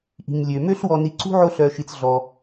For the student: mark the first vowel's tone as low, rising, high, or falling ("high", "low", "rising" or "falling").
low